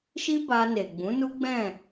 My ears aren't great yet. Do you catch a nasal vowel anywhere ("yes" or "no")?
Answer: yes